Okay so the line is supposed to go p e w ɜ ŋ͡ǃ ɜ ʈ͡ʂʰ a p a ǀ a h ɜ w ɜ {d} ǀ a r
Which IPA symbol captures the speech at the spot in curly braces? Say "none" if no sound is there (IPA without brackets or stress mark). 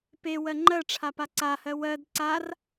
d